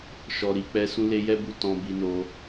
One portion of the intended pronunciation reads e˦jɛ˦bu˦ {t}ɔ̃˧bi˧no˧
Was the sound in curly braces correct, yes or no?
yes